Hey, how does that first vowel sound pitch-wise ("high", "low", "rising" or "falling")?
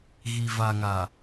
low